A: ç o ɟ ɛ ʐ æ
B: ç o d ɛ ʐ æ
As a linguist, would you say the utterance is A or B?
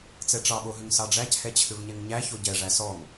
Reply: A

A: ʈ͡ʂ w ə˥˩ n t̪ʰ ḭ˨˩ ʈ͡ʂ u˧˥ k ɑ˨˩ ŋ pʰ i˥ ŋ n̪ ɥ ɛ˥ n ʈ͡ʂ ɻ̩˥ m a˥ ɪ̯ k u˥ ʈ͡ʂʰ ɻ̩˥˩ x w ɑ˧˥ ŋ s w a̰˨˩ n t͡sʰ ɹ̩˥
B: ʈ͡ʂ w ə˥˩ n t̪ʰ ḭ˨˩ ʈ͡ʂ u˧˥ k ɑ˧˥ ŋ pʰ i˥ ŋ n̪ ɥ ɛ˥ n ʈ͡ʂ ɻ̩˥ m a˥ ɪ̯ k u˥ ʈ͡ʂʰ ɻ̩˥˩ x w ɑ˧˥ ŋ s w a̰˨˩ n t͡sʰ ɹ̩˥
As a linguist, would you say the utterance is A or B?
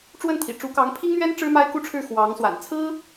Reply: B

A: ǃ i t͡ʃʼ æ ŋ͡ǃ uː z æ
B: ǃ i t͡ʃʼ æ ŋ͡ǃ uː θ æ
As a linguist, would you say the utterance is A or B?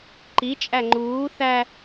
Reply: B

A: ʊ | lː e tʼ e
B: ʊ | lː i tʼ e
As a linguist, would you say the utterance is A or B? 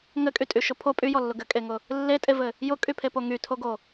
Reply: A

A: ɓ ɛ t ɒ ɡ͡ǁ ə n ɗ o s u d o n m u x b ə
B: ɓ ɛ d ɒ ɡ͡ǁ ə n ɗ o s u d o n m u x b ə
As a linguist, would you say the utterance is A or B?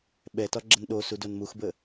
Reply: A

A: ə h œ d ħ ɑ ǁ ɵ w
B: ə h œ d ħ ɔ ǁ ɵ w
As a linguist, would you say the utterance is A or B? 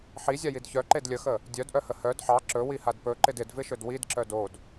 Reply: A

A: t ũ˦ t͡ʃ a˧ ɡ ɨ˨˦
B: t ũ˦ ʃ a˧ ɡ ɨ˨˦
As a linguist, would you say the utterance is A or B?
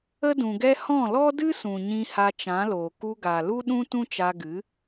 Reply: A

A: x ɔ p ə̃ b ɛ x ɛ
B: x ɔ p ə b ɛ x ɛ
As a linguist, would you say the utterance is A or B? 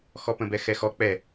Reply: A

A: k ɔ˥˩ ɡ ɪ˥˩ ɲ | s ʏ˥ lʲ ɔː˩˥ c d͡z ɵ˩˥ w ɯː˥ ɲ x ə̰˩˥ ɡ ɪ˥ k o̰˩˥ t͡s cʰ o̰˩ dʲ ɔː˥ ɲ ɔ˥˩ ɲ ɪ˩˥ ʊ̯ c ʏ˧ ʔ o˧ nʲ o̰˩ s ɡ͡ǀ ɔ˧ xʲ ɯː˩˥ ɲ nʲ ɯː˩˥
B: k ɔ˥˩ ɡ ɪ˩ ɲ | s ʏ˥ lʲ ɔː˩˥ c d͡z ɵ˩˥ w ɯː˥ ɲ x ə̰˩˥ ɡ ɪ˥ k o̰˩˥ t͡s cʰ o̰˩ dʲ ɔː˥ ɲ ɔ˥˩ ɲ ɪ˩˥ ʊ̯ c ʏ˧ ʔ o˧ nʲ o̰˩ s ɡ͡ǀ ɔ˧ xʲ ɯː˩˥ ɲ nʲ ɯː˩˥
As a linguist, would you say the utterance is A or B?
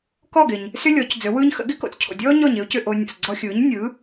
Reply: B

